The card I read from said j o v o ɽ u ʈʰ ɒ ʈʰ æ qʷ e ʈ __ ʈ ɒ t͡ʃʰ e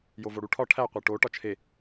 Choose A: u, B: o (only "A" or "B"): B